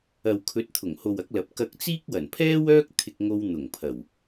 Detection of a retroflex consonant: absent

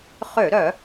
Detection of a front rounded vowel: present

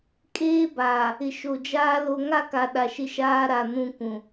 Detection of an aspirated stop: absent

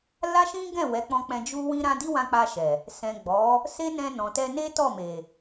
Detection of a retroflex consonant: absent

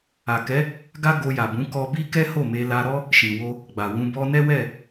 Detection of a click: absent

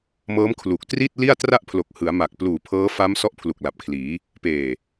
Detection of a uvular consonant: absent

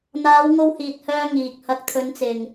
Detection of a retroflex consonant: absent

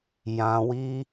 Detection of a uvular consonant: absent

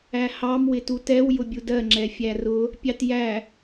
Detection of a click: present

